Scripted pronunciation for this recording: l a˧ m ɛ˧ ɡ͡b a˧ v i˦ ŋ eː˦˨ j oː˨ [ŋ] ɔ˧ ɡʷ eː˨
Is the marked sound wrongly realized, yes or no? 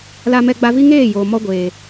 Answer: yes